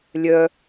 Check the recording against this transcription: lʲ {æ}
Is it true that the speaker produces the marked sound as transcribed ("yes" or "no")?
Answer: no